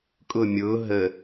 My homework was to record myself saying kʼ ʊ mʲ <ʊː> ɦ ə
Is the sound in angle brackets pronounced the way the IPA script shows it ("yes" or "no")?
yes